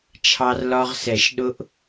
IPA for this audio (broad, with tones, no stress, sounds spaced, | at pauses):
t͡ʃʰ ɑ˧ r l ɒ˧ ʁ s ɛ˨˩˦ ʃ ɗ ʊ˦˥ ʔ